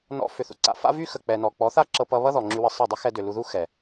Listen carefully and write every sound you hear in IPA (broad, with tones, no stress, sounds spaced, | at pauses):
n ɔ̰˧ f ʏ˨ θ ṵ˨ ǀ a̰˧ f a̰˦ v y˦ x ə˨ k͡p ɛ˨ n ɔ˨ k͡p ɔ˨˦ θ a˦ ǁ ɤ˧ p ʌ˧ β ʌ˦ ð ɔ˨ ŋ͡ǁ y˧ w ə˧ sˤ ɤ˦˨ dˤ ə˦ x ɛ˧ d ʏ˨ l u˧ ð u˦ x ɛ˨